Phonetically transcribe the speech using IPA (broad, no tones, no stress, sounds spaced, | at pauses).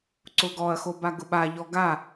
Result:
ǀ ʊ ɡ ɔ ɐ̯ x o b a ɡ ʊ ɓ a ʎ ɔ ɡ a